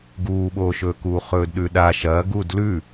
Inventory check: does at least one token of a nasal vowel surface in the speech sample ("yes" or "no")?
no